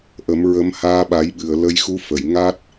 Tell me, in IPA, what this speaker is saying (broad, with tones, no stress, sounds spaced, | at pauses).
ʔ ə˨˩˦ m ɹ ə˧˥ m h aː˧ ɓ a˨˩˦ j ɓ ɨ˨˩˨ ə̯ l ə˧ j x u˧˥ f ə˨˩˨ j ŋ a˦˥ t̚